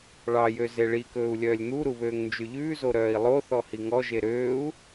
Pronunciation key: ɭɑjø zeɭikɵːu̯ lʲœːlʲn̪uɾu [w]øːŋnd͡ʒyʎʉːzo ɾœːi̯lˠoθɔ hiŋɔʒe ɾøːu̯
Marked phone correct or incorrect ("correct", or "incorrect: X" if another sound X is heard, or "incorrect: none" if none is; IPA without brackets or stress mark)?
incorrect: β